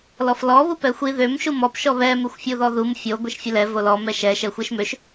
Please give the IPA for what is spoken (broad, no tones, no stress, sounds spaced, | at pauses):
l ɔ f l ɔ β u p ɛ xʷ i ð ø m ʃ u m ɔ p ʃ ɔ β ɛ m e xʷ fʲ u ð ɔ ð u m fʲ o ɡʷ e ʃ fʲ ɛ l ɛ v o l ɔ m ɛ ʃ ɛ ʃ ɛ xʷ e ʃ m ø ʃ